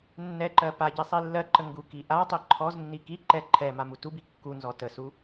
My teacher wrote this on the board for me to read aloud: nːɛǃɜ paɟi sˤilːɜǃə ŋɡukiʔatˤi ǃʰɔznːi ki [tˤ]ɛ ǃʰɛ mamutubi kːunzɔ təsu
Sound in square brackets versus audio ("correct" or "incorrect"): incorrect